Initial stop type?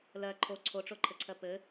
click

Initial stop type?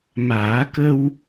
plain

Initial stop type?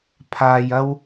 aspirated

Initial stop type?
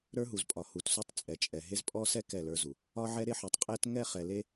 ejective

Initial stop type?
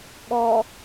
implosive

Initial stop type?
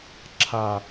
click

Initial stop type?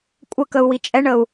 ejective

